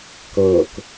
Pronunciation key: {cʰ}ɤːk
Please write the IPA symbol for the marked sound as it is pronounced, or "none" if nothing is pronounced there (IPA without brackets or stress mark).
k